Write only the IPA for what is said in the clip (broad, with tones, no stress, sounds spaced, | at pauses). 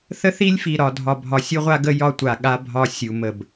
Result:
θ ə˦ θ i˦ lʲ f i˨ ɾ ɒ˨ dʱ ɒ˨ bʱ ɒ˨ sʲ u˦ ʁʷ a˦ ɡ ə˦ j ɒ˦ tʷ a˨ ɠ a˦ bʱ ɒ˦ sʲ u˨ m ə˦˨ b